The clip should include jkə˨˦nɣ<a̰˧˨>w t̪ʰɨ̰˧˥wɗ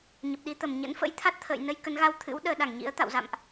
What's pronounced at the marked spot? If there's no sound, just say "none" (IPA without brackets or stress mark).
a˧